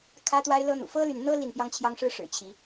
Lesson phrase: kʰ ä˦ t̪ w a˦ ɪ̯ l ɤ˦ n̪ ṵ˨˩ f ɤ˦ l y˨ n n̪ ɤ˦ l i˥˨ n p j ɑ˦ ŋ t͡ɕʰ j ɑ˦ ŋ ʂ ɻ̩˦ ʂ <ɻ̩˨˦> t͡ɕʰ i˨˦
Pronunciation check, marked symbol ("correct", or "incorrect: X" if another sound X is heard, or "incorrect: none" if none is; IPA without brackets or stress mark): incorrect: ɻ̩˨˩